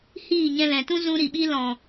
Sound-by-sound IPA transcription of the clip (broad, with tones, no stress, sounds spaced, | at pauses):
h iː˦˨ ɲ ɛ̃˧ l ɛ̃˨ t ũ˦ z ũ˧ ɾ i˨ ɓ i˧ l ɔ̃˨